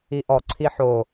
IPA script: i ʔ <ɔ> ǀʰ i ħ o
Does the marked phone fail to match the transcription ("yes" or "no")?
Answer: no